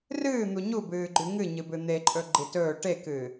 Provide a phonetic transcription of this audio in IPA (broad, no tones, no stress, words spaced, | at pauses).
rɨːn̪u ɲubɨːɡ͡ǃʉ ŋɨɲɨbɨ n̪eǃʼɵɡ͡ǃi tɵː ʈekɨː